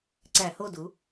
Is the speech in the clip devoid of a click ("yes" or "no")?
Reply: no